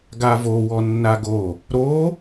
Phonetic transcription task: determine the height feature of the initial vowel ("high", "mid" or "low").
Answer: low